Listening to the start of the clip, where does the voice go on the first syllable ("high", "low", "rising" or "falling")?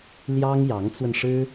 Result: high